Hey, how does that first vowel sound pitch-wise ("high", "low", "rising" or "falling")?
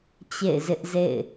falling